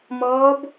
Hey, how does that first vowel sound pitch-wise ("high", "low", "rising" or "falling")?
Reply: rising